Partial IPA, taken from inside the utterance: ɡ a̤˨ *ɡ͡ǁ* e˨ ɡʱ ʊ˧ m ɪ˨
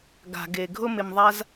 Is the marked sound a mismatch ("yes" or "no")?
yes